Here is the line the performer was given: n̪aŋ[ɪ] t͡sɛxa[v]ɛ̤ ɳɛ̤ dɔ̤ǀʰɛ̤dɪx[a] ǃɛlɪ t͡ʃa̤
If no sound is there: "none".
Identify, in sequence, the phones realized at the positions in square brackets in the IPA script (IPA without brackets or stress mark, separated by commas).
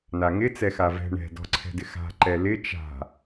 ɪ, v, a̤